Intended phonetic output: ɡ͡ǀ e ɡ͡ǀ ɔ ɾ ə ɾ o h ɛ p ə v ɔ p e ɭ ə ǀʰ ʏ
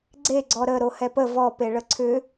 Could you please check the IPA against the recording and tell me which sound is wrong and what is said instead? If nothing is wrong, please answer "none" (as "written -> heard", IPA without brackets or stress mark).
none